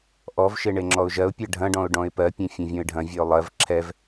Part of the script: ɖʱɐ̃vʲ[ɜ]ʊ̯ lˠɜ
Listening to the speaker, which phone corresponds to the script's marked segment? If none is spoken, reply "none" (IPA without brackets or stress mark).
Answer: ɜ